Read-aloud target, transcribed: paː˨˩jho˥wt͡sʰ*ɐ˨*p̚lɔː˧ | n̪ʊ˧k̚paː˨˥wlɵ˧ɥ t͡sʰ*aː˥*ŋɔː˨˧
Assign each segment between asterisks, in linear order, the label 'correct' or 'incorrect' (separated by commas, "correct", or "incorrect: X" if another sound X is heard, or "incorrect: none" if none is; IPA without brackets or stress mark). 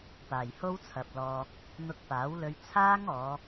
correct, correct